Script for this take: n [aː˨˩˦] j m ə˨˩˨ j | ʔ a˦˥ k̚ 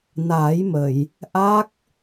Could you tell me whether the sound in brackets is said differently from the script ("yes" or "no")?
no